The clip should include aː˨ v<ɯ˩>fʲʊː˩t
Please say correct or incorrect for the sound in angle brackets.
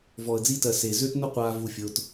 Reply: incorrect